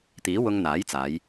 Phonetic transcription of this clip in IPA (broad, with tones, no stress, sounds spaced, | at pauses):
t̪ iː˨˥ w ʊ˧ ŋ n̪ aː˨˥ j t͡s aː˨˧ j